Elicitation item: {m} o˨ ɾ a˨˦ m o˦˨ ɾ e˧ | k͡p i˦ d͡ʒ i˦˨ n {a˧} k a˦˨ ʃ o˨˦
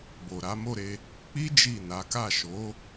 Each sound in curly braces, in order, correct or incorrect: incorrect, incorrect

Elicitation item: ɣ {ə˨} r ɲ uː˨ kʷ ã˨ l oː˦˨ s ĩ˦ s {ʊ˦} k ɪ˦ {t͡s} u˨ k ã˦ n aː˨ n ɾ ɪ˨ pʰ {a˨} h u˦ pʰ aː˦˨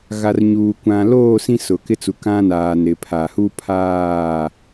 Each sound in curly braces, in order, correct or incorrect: incorrect, incorrect, correct, correct

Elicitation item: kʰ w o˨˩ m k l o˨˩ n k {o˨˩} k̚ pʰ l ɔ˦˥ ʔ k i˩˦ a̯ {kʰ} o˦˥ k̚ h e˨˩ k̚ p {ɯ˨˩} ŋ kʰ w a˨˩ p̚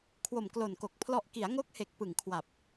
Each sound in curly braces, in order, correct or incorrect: correct, incorrect, correct

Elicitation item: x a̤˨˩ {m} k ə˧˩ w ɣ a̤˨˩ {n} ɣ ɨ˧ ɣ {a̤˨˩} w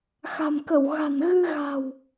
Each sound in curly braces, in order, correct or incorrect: correct, correct, correct

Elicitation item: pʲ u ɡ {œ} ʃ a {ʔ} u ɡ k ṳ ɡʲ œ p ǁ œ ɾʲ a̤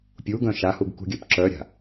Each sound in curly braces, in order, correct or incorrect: incorrect, incorrect

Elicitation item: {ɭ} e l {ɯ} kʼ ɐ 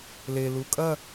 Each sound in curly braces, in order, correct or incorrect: incorrect, incorrect

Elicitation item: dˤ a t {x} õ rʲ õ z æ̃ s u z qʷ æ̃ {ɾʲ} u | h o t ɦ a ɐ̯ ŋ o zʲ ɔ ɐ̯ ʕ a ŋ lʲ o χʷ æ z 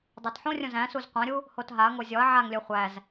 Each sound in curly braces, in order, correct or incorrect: incorrect, correct

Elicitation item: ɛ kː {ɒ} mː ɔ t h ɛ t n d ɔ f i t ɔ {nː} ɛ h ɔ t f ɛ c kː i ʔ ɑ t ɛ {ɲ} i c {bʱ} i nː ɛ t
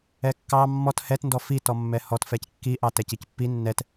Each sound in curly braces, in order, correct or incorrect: incorrect, incorrect, incorrect, incorrect

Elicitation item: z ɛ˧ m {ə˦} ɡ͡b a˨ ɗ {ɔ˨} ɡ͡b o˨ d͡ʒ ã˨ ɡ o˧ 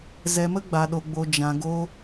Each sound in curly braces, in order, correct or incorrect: correct, incorrect

